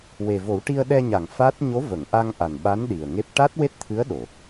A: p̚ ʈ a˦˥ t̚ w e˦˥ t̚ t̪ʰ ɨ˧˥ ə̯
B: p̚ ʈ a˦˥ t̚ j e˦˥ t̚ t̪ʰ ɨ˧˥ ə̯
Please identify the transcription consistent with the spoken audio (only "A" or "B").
A